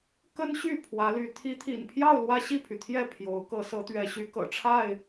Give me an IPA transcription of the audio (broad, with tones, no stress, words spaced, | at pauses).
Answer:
kə˦nɕy˥˨ pʰwä˨˦ly˨˦ t̪ʰi˨˦t̪ʰḭ˨˩npʰjɑ˥˨ʊ̯ lwä˦ɕi˥˨pʰy˩t̪ʰjɛ˥˨ pʰjo˨˦ʊ̯ kɤ˨˦sɤ˨˦t̪ɥɛ˨˦ɕy˨˦ kɤ̰˨˩ʈ͡ʂʰa˥˨ɪ̯